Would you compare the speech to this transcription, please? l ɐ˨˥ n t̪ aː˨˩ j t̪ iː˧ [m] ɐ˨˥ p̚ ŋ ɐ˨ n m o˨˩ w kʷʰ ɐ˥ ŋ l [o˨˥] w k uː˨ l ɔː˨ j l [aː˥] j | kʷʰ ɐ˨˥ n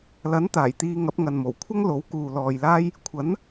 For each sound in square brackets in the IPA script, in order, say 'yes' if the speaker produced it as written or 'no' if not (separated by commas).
no, yes, yes